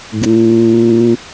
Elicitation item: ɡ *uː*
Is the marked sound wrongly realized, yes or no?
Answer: no